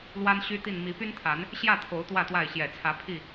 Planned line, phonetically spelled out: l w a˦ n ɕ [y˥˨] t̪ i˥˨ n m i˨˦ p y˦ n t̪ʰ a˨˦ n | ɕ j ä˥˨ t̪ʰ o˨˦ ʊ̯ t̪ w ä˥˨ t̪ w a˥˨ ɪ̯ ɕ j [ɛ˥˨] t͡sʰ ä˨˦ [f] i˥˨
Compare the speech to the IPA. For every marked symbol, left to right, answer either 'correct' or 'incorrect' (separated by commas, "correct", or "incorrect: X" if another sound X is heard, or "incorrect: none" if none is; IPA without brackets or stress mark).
incorrect: y˦, incorrect: ɛ˨˩, incorrect: pʰ